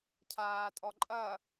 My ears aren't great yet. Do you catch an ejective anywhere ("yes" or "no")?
yes